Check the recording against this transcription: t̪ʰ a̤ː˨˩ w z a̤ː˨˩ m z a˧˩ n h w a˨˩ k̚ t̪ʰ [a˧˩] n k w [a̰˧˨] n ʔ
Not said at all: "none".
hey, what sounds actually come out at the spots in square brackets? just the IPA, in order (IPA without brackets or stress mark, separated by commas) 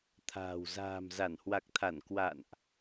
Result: a˧˩, a̰˧˨